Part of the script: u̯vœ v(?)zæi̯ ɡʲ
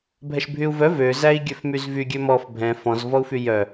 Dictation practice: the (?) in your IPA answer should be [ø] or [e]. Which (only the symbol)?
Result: ø